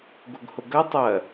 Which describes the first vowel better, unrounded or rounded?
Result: rounded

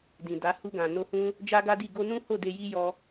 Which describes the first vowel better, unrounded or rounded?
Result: unrounded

